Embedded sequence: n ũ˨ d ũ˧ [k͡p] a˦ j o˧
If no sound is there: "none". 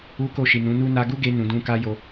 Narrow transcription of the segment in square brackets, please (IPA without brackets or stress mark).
k